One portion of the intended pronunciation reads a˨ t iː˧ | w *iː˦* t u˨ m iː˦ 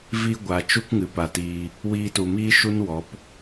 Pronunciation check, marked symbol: incorrect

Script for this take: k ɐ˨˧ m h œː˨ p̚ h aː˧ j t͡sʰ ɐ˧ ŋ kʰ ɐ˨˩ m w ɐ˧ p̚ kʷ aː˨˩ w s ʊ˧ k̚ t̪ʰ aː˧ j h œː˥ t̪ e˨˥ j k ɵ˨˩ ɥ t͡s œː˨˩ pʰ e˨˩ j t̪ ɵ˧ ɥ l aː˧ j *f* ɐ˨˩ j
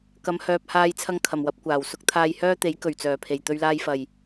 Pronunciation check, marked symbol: correct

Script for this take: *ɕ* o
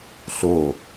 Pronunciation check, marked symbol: incorrect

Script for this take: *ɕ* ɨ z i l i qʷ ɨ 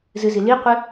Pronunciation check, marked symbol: incorrect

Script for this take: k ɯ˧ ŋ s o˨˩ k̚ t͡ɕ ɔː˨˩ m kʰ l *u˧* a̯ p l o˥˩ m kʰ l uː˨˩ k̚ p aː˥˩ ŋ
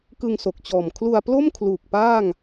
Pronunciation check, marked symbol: correct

